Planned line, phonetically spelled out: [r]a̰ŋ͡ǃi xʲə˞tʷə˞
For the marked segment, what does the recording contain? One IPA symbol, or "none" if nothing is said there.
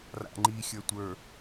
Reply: r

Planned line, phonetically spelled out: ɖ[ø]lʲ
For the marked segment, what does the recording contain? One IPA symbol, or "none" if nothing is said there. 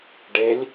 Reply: e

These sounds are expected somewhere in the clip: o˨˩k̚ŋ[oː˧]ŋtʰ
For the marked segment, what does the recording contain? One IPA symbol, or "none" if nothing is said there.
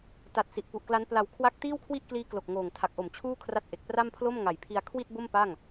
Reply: oː˨˩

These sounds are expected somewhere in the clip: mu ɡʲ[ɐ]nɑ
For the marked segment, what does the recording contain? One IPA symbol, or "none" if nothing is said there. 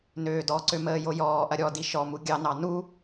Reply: ɑ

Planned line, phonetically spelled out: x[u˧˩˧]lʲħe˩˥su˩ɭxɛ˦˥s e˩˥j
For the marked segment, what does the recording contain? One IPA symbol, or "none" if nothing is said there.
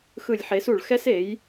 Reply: ɯ˧˩˧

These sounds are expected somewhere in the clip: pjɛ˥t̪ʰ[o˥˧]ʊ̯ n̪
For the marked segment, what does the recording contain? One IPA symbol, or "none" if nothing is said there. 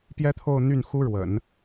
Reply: o˥˧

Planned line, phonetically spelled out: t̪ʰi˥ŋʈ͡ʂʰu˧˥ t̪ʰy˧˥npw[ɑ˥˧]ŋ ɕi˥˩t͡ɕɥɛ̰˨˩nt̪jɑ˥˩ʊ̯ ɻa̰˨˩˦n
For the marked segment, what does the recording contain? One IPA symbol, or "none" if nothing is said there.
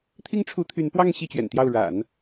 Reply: ɑ˥˧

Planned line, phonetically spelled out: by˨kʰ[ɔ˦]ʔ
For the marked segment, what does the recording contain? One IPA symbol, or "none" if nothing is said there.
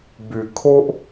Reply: o˦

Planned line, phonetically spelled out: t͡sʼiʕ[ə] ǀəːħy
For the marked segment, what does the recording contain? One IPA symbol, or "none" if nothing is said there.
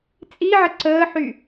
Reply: ə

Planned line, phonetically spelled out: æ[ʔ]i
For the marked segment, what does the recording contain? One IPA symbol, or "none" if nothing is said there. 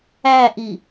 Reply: ʔ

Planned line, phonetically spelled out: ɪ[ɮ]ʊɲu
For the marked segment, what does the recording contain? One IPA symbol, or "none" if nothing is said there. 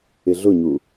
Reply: ɮ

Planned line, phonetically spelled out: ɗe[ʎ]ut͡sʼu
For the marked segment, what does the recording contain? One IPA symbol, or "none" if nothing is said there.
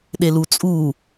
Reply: l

